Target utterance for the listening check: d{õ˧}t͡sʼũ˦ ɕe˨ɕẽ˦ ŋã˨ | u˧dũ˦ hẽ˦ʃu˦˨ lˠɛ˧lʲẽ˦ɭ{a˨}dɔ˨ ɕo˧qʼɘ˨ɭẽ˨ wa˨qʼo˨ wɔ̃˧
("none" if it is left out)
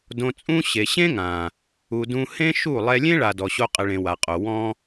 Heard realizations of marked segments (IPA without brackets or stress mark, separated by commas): õ˧, a˨